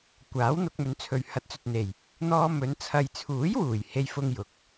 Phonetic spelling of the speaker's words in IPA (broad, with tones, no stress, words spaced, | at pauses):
kʷaː˨˥w n̪ʊ˧k̚mɵ˨˥nt͡sʰɵ˨ɥ hɐ˨˥t̚t͡sɵ˨t̚n̪e˨˩j | n̪ɔː˧ mɵ˨˧n t͡sʰɐ˨jt͡sʰuː˨˥jwuː˨˩j he˥jfʊ˥ŋjʊ˨k̚